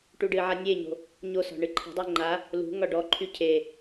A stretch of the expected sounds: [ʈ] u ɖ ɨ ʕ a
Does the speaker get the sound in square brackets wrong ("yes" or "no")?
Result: no